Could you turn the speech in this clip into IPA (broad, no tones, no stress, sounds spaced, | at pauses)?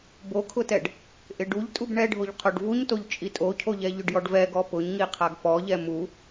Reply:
b o kʰ ʊ t ɛ ɖ | ʔ ɪ ɖ u ʎ tʼ u b ɳ ɛ ɖʱ o ʎ qʰ o ɖ v u ɲ t o ʎ t͡ʃʼ i tʼ o cʰ o ʎ ɛ ʎ ʊ ɖ j ɔ ɖ v ɛ ɡ ɔ p ʊ ɲ ŋ i qʰ a ɡ p ɔ ʎ ɛ m u